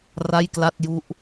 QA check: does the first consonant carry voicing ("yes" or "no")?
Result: yes